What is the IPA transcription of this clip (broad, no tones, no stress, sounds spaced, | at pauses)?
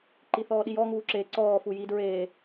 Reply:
ǃ i θ ɔː ɗ i j ɔ ŋ uː ǁ e ǀ ɔː f u j i d ɹ eː